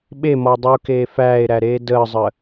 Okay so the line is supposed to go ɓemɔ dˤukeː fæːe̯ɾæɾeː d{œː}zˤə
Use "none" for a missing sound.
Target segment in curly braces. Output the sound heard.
əː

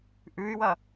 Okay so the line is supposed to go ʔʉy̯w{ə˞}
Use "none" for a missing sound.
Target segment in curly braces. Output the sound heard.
ɐ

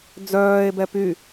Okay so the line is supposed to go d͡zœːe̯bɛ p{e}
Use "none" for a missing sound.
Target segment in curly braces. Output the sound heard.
y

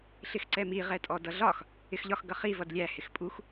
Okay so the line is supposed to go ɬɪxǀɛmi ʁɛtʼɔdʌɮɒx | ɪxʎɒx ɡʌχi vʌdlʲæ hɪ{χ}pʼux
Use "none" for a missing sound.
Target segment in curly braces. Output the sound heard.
x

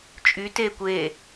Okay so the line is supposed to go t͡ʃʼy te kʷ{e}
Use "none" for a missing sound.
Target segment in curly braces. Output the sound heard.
e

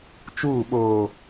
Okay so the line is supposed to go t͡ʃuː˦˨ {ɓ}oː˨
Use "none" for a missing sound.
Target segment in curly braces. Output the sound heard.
ɓ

